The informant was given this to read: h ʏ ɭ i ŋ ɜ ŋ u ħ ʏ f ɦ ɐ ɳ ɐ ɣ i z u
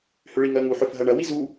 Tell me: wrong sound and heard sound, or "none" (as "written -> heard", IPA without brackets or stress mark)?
ɣ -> w